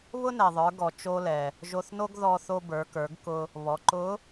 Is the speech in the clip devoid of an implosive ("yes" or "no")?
yes